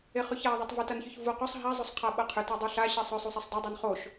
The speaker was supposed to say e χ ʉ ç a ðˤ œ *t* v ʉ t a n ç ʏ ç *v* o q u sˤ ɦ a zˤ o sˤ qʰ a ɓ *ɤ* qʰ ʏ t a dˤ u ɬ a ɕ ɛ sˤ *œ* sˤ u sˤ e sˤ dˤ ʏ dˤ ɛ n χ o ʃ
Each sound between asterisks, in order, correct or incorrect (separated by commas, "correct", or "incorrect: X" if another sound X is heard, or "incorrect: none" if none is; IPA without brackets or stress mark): incorrect: tˤ, correct, correct, correct